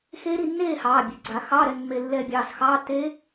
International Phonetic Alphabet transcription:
x e˦˥ ɾ i˥˨ nː eː˥˨ h ɑː˩˧˩ bʲ e˩˧˩ ɡ͡ǀ a˨˩˦ x ɑ˧˥˧ ɾ ɛ˧ n mː e˧ lː ɛː˧ bʲ ɑː˩˧˩ s x ɑː˧˥˧ t e˦˥

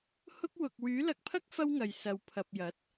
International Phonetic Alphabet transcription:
h ʊ˥ k̚ w ʊ˧ k̚ w yː˨˥ l ɐ˧ k̚ pʰ ɐ˥ k̚ f ɐ˥ w ŋ ɐ˨ j s ɐ˨ w pʰ ɐ˨ p̚ j ɐ˨˥ t̚

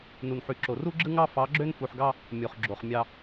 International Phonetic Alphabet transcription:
n u˨ n ħ y˨ ǁ o˨ r u˦ ɡ͡ǁ ɯ˦ ŋ ɑ˦ f ɑ˨˦ ɡ͡ǁ ø˦ n f u˨ ħ ɡ ɑ˦ | mʲ o˨ χ ɡ͡ǁ o˨ χ mʲ ɑ˦

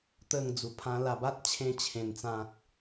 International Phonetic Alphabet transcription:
t̪ ə˥˧ ŋ d͡z u˧ pʰ ã˦ l a˧ b a˦ t̚ t͡ɕʰ ẽ˥˧ t͡ɕʰ ẽ˧ n t͡s ã˦ k̚

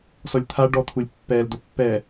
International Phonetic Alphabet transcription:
s ɔ lʲ t̪ʰ a ɖ ɔ t̪ʰ u lʲ pː ɛ l d o pː ɛ

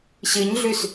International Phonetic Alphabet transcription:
ɕ ɨ ɲ ɮ ʉ s

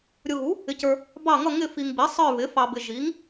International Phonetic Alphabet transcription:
ɾʲ ʊ˨ ɣ u˩˥ | ɪ˨ c ə˞˨ | b ɑ˦˨ ŋ ʌ˦˨ ŋ ɪ˦˨ f i˨ ŋ b i˩˥ sˤ ə˞˦˨ β ɪ˩˥ f ɑ˨ b ɪ˨ ʒ i˩˥ ŋ

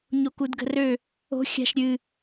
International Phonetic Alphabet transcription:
ɲ o k u d ɡ ə̤ r ø | o̤ xʲ a̤ ʃ ɾʲ ɨ

